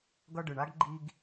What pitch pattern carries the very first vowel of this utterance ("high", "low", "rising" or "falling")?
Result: high